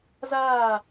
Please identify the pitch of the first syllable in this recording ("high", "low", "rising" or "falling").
falling